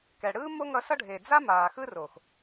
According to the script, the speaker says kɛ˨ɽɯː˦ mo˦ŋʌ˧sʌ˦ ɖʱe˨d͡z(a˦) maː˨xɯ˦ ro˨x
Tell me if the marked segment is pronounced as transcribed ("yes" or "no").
yes